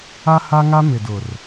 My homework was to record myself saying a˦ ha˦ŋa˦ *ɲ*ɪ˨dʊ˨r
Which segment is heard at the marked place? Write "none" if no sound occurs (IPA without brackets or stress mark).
m